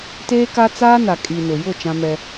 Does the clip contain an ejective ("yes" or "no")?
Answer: yes